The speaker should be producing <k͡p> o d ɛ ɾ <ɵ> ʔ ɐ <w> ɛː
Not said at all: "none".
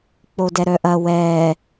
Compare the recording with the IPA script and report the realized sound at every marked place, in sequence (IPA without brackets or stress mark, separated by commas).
k͡p, œ, w